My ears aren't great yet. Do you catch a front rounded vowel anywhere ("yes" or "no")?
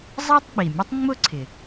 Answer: no